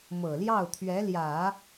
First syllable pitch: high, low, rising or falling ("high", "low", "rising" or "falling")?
low